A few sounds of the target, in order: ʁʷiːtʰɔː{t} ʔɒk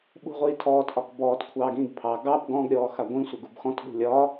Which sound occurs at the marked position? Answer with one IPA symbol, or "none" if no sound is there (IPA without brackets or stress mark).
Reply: t